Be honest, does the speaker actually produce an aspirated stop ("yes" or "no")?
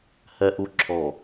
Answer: yes